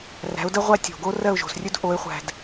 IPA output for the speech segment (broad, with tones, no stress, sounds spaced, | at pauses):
r æ̤˩˥ ʊ̯ d ə˥ ʁʷ æ˥ tʲ o̤˩ ɡ o˥ r ɜ˥˩ ʊ̯ ʒ o̤˩ s rʲ ɵ˥ d ʔ o˩˥ ɪ̯ χʷ æ̤˩ d